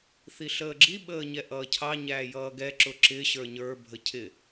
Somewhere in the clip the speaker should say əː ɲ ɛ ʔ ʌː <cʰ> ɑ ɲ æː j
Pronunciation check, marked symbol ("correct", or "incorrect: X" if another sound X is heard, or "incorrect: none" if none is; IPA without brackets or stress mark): correct